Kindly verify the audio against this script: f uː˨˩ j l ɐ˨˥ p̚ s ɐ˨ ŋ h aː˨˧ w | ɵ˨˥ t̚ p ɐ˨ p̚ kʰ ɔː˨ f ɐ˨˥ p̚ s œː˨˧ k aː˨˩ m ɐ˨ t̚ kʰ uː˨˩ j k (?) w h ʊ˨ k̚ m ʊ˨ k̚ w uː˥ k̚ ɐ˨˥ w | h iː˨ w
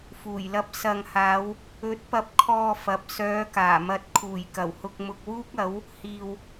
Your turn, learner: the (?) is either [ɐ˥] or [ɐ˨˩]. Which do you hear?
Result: ɐ˨˩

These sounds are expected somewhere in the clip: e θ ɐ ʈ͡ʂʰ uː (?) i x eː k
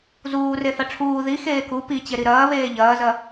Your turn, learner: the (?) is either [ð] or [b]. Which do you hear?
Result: ð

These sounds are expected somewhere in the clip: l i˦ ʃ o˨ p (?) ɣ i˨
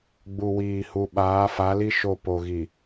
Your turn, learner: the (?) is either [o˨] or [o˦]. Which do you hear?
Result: o˨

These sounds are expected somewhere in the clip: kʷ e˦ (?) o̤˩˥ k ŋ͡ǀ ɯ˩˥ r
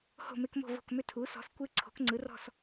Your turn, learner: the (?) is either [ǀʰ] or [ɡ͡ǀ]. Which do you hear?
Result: ǀʰ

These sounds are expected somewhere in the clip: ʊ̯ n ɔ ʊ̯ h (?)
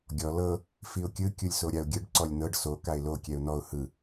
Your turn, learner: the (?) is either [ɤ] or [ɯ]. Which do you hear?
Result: ɯ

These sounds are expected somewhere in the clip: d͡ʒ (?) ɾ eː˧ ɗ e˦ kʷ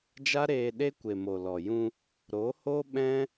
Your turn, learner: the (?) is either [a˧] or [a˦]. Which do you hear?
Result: a˦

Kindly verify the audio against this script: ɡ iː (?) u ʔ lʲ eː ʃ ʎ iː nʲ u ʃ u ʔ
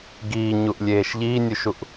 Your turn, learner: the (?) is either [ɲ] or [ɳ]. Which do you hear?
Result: ɲ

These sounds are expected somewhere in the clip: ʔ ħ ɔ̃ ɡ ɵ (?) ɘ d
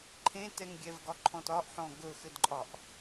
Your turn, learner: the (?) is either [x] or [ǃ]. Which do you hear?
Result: x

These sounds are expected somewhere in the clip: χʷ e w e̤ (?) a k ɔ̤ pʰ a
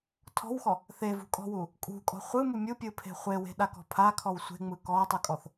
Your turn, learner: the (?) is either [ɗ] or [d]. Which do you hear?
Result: ɗ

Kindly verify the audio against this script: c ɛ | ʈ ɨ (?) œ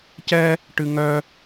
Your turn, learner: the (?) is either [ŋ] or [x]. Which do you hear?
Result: ŋ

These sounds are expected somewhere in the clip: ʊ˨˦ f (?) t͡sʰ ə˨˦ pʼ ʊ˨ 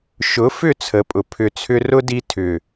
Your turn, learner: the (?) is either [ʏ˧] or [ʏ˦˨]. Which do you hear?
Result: ʏ˦˨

